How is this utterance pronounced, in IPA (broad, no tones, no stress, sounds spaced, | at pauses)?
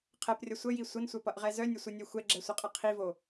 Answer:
qʰ ɛ p rʲ ʌ sʷ ə j i sʷ ə n sʷ œ p ʌ ʔ ʁ ɛ z œ nʲ ə sʷ ʌ nʲ œ xʷ ɛ ɡ͡ǁ ɛ sʷ ʌ qʼ ʌ qʰ i v o